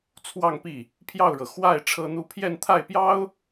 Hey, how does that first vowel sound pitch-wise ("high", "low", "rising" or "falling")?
falling